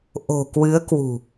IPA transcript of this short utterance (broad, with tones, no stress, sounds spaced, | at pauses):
ʔ o̤˨˩ k w ɨ˨˦ ə̯ k w ṳ˨˩